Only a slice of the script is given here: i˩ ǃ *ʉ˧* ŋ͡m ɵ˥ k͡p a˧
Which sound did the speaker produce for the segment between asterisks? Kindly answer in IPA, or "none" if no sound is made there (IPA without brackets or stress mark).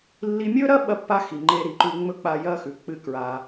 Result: ʉ˧